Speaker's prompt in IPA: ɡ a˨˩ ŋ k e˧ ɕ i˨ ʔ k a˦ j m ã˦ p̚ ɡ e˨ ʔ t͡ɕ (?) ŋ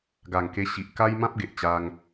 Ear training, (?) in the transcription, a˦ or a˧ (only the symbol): a˦